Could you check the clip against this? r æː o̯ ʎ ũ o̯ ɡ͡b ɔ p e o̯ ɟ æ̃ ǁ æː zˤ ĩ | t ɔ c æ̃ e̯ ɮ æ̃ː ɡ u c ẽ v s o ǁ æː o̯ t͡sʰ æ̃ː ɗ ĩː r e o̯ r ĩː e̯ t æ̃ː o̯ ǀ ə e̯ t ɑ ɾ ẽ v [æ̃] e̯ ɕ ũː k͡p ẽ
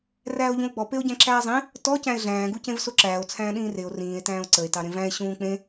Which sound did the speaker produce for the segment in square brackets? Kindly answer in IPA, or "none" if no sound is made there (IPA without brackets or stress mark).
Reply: æ̃